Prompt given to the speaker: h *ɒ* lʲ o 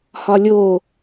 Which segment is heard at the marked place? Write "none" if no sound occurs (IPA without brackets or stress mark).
ɒ